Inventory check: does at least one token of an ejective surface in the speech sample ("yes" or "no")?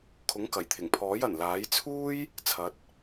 no